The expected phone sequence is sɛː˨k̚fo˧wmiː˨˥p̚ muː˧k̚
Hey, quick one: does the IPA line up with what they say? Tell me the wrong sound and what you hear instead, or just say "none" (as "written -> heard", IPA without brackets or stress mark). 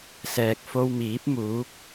uː˧ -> uː˨˥